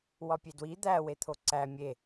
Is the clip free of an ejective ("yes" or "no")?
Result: yes